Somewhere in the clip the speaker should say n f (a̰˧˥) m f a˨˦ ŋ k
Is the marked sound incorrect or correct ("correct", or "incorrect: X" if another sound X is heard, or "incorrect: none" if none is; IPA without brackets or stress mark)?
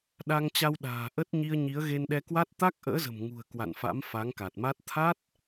correct